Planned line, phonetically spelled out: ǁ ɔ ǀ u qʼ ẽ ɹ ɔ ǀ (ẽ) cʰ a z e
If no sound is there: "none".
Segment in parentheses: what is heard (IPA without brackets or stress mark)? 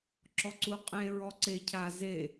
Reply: e